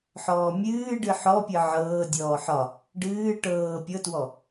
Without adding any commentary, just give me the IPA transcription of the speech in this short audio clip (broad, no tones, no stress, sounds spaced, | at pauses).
ħ ɔː mʲ ɨː ɖ ɨ ħ ɔ pʲ ɨ ʕ ɤː dʲ ɔː ħ ɒ | ɖ ɨː ʈ ɤː pʲ ɤ t w ɔ